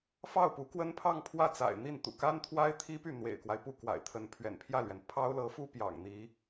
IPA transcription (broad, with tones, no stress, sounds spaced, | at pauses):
f ɑ˥˩ ʊ̯ p u˧˥ k w ə˥ n pʰ ɑ˥˧ ŋ pʰ w ä˥˩ t͡s a̰˨˩ ɪ̯ n̪ i˥˩ n t̪ ṵ˨˩ k a˥ n t̪ʰ w a˥ ɪ̯ t̪ʰ i˥ p y˥˩ n̪ w ḛ˨˩ ɪ̯ k w a˦ ɪ̯ p u˥˩ k w a̰˨˩ ɪ̯ t̪ʰ ə˧˥ n pʰ ɥ ɛ̰˨˩ n pʰ j ä˥˩ l ɥ ɛ˩ n pʰ ɑ˥ ʊ̯ l ɤ˧˥ f u˥ p j ɑ̰˨˩ ŋ n̪ i˧˥